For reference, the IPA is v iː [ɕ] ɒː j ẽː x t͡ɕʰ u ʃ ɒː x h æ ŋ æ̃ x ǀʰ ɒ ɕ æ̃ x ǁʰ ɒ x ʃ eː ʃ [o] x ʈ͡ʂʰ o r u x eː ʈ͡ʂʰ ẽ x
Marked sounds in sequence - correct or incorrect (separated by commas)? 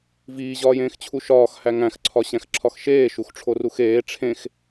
incorrect, incorrect